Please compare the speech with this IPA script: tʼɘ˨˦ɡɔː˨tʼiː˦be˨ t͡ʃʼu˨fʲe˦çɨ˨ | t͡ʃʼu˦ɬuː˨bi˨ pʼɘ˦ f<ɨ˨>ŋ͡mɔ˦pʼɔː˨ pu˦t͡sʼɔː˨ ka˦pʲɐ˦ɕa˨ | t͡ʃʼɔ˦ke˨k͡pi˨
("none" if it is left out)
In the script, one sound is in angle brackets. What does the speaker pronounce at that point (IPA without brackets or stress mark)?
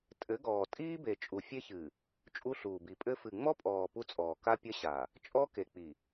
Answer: ɨ˨